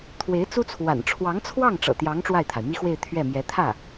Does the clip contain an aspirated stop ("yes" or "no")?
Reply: yes